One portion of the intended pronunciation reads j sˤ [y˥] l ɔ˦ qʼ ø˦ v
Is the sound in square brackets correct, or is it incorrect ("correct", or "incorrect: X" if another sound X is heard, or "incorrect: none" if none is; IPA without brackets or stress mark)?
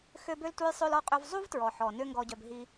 incorrect: ø˥